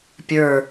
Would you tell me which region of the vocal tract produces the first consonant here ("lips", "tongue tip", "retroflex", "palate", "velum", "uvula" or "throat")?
lips